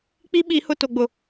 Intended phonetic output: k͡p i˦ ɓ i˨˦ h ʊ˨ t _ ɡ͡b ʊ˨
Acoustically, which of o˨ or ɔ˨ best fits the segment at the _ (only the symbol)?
o˨